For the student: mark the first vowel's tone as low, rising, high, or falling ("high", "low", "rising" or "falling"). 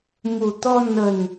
low